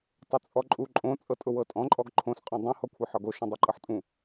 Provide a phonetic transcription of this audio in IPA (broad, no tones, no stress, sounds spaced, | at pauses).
tˤ ʊ t͡sʼ ɔ ǃʼ u ǃʼ õ t͡sʼ ɤ tʼ ʊ w ɤ tʼ ɔ̃ ǃʼ ɔ ɡ ǃʰ õ s qʼ ɔ̃ dˤ ũ h ɔ kʷʰ ɤ ħ ɒ ɡ o ʃ õ dˤ ɤ ǃʼ ɤ ħ tʼ ũ